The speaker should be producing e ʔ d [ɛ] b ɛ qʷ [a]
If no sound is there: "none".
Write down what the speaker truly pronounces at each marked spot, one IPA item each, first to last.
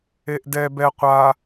ɛ, a

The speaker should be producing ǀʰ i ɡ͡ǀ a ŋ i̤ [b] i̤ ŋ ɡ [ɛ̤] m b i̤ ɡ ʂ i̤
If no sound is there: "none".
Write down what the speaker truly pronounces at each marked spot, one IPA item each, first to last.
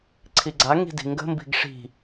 d, ə̤

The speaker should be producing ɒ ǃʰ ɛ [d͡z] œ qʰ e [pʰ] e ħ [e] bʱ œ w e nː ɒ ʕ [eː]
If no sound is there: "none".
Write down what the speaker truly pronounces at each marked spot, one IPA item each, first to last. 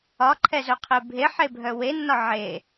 z, bʱ, e, e

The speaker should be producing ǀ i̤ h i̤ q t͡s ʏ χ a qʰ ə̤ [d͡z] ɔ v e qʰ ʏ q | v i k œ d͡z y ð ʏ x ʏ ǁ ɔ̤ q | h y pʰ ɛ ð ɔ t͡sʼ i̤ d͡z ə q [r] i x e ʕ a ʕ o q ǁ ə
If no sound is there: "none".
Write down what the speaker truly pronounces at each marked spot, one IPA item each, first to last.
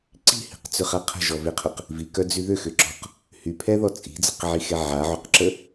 ʒ, ʕ

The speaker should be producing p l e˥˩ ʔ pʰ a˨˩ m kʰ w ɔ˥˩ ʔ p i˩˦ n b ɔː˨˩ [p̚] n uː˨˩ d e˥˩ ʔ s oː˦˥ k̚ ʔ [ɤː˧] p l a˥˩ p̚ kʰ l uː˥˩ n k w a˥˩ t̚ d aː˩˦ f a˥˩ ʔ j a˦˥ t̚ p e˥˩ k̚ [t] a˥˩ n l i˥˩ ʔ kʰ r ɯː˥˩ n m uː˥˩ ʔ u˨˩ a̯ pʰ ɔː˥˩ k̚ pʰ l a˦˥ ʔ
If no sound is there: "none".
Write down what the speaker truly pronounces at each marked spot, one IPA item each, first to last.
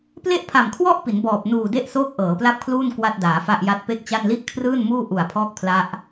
p̚, ɤː˩˦, t͡ɕ

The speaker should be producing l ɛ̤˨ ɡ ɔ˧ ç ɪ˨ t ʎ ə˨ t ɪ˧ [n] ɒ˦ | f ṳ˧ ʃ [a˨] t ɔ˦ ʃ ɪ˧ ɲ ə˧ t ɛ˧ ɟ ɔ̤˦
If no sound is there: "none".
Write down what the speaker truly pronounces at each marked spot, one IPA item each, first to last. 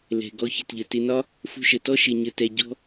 n, ə˨

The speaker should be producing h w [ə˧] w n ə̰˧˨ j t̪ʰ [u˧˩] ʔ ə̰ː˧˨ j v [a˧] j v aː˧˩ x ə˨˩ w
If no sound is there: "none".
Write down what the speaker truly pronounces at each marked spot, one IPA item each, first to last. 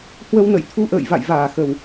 ə˧, u˧, a̰˧˨

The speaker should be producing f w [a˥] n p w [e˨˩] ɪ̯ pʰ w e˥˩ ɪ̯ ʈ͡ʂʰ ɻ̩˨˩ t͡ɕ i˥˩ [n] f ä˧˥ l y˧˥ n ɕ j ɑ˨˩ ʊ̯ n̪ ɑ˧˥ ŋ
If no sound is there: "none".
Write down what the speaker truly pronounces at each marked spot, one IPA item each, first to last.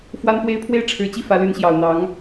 a˥, e˥˧, none

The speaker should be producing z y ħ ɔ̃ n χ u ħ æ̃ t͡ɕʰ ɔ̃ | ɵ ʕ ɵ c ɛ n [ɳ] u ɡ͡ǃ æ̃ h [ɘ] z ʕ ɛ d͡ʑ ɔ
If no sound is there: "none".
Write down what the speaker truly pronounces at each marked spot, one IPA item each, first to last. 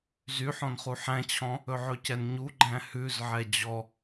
ɲ, ʉ

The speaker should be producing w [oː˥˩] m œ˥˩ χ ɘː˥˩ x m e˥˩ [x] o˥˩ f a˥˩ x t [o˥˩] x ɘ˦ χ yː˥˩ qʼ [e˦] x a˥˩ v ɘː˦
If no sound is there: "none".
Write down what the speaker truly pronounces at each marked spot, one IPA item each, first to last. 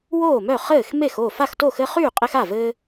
oː˥˩, x, o˥˩, e˦

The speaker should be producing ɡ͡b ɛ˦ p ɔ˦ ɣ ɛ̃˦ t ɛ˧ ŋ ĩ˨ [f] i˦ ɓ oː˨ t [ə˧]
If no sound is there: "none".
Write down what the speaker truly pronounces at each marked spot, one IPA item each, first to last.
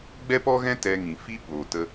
f, ə˧

